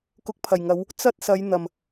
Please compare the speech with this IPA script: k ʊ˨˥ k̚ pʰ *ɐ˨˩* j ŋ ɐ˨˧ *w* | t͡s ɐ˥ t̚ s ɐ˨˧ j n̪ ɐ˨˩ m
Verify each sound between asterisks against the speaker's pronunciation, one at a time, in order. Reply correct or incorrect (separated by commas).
correct, correct